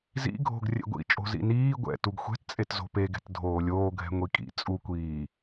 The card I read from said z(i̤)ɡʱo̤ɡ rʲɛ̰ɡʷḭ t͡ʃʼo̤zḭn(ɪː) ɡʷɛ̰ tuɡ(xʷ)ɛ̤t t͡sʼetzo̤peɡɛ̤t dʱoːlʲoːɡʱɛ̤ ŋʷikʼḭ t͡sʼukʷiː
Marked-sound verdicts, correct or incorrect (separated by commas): incorrect, incorrect, correct